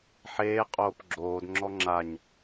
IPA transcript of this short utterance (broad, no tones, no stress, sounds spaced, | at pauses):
ħ eː qʼ oː p ɡ͡ǁ oː d ŋ͡ǁ ɔ ŋ͡ǁ a ɲ